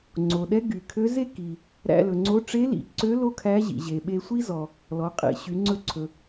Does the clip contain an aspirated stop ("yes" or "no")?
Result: yes